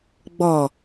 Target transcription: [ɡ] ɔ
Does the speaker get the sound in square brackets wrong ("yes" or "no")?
yes